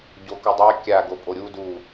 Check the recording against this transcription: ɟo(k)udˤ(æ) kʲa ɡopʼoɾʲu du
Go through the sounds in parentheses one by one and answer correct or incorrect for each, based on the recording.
correct, incorrect

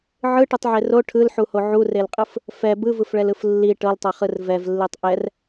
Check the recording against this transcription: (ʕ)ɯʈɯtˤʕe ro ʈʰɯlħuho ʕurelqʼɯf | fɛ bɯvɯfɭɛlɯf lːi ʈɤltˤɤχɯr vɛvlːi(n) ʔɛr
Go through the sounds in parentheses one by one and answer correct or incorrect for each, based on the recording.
correct, incorrect

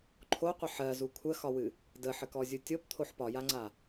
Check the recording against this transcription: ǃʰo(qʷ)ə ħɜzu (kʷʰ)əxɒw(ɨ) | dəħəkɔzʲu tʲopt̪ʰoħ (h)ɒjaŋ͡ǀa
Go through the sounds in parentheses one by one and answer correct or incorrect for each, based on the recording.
correct, correct, correct, incorrect

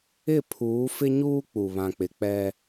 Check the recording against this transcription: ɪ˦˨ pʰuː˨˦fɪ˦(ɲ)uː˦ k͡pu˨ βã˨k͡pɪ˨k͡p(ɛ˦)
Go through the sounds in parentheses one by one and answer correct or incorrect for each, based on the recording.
correct, correct

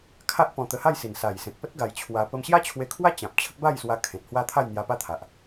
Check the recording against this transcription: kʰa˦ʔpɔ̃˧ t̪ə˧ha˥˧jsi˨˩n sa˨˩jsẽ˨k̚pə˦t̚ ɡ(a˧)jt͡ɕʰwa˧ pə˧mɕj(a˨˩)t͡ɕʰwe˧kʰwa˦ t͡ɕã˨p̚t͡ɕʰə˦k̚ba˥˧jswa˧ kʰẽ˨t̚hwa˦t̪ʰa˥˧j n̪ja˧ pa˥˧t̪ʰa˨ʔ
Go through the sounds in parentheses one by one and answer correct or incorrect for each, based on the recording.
correct, incorrect

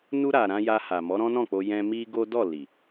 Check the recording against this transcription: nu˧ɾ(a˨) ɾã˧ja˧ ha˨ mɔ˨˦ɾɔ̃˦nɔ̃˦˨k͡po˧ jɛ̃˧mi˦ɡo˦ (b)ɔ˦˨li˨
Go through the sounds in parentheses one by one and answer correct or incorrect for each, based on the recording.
correct, incorrect

